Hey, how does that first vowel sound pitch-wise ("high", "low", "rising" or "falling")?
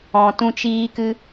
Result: low